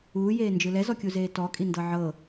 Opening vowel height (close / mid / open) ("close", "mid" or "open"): close